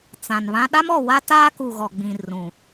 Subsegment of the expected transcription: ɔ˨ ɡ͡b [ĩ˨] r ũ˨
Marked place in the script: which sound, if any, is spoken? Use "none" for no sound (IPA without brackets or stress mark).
ĩ˨